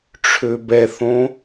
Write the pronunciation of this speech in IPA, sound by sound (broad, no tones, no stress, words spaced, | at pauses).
ʈ͡ʂʰøbɛθõ